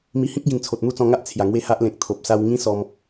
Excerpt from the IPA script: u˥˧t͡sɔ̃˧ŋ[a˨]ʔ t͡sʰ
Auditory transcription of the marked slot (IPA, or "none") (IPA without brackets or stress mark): a˦